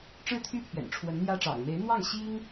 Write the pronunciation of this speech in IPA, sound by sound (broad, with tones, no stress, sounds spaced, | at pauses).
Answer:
ʈ͡ʂ ɻ̩˥˧ t̪ʰ y˥˩ pʰ ɥ ɛ̰˨˩ n ʈ͡ʂʰ w ə˧˥ n n̪ j ä˥ ʈ͡ʂ ɑ̰˨˩ ŋ m e˧˥ ɪ̯ n̪ w ɑ˥˩ ŋ ɕ i˥ ŋ